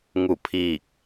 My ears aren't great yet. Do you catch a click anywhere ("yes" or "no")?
no